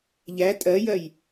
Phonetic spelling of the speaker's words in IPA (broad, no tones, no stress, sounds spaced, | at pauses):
ʎ æ tʼ ɜ j ɜ j